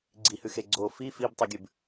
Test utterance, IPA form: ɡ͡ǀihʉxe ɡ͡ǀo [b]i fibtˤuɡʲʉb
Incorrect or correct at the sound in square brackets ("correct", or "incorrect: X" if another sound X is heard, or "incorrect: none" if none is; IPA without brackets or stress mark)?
incorrect: f